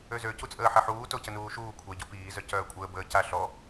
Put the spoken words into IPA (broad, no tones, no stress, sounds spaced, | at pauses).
ø z ø c u t͡sʼ əː ħ ɛ ħ uː t o c ə n uː ʃ uː kʷʰ ɛ ɟ o p iː z œ c œː kʷʼ əː b əː c a ɬ ɔ